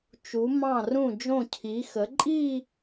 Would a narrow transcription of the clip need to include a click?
yes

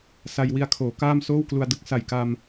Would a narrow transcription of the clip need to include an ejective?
no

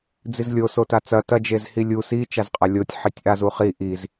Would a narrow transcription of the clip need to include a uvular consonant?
yes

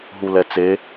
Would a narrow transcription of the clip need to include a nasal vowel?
no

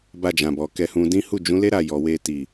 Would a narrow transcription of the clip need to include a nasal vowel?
yes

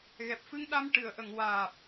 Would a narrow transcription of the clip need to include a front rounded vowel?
no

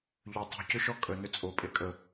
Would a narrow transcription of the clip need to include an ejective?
yes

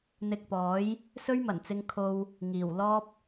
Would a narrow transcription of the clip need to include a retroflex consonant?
no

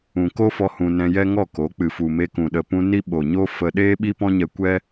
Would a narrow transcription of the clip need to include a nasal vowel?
yes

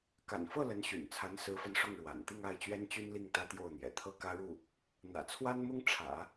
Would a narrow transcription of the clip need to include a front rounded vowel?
yes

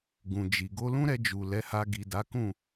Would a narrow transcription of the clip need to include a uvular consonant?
no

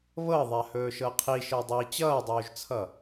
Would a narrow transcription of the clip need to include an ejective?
no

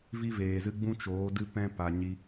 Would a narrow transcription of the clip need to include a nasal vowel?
yes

